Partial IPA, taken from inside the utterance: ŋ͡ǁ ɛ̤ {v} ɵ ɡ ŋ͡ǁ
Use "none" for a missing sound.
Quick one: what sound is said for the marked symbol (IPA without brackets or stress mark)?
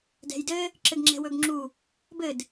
w